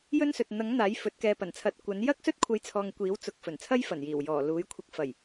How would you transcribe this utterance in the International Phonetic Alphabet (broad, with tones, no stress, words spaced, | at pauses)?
jɵ˥nsɵ˨t̚ n̪ɐ˨˥ŋ n̪aː˨˥jfɵ˨˥t̚kɛː˧ pɐ˨˩nt͡sʰɐ˨˥t̚ kʷɐ˨˥n jɐ˥k̚ sɵ˥t̚kʷʰɐ˨˥jt͡sʰɔː˨ŋ kʷiː˨˥wt͡sʊ˨k̚ fɵ˨˩nt͡sʰɐ˥jfɐ˨˩njiː˨˩w jɔː˨˩ luː˨˥jkʷʰɪ˧k̚ fɐ˨˩j